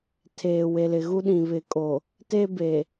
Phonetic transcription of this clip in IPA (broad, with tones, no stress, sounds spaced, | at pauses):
tʰ eː˨ w e˨ l ɪ˨ ɣ u˦ ɗ ĩ˨ β ɪ˨ kʼ o˨ | t e˦ b e˨